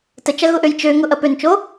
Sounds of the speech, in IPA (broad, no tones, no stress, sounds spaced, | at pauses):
t ə t͡ʃ ɐ ɣ ʊ ʔ ø j t͡ʃ ø ŋ ʊ ʔ ɐ p ø n t͡ʃ o